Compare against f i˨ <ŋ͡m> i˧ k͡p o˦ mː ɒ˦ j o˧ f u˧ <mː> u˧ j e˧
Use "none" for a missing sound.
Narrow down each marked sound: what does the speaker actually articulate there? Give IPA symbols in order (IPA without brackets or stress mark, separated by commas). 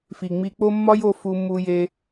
ŋ͡m, m